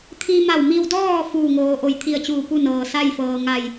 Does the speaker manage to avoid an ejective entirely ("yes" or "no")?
yes